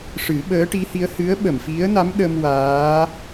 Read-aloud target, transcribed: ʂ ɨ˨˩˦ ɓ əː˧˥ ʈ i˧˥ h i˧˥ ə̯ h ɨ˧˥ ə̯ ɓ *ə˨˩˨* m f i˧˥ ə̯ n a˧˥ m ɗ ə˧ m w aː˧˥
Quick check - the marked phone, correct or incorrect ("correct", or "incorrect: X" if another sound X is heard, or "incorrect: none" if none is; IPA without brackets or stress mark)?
correct